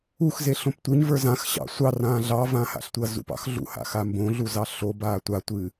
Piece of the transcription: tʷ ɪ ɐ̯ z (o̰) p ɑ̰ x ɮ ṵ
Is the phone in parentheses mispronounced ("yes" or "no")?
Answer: yes